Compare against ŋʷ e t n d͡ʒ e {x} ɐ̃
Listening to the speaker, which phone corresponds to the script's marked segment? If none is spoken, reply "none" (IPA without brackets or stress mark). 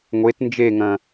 ŋ